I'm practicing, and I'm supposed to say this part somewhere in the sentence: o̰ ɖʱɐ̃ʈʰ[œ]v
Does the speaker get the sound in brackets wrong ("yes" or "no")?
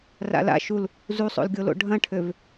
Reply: yes